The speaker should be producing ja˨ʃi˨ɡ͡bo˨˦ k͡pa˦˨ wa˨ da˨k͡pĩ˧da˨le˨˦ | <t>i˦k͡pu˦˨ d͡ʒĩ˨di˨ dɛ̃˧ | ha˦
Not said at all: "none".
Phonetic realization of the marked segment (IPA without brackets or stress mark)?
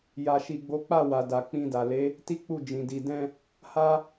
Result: t